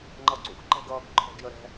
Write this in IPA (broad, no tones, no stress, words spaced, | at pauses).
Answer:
ŋ͡ǃʌǀṵɡǃɛ̤ɡ ʌːɡǃʰɔ̤ɡjəɾɛ̤